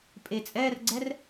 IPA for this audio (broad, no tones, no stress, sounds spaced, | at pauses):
pʼ e t͡sʼ ɛː r ɡ͡ǀ ɛ r